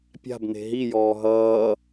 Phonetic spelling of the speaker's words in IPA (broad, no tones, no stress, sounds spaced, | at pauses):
pʲ a̤ b n e̤ ɦ i j ɔː ɦ ʌː